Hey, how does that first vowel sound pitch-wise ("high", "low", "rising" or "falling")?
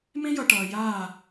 high